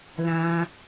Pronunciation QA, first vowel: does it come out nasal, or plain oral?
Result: nasal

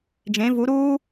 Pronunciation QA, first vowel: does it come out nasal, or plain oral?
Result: nasal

